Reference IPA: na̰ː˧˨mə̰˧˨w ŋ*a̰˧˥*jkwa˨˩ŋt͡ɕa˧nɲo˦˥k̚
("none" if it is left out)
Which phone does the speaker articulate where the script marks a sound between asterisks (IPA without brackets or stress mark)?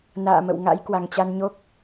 a̰˧˥